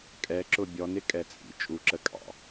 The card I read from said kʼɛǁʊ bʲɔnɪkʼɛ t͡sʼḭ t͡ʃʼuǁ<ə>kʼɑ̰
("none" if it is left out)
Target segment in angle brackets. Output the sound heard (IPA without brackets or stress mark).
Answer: ə